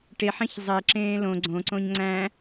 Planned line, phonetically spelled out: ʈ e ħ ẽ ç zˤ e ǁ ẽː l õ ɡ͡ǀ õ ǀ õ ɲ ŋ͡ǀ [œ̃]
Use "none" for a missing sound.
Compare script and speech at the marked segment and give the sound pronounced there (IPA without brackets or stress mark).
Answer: æ̃